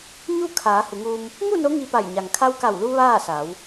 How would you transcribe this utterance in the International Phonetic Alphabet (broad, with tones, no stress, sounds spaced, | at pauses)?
ɲ u˥˨ kʰ aː˩˧ h u˩˧ ŋ uː˧ m | ŋ u˥˨ n o˧˥ ŋ i˧ p a˧˩ j ɲ a˩ ŋ kʰ a˧ w k a˧˩ w l u˧ ʋ aː˥˨ s a˩˧ w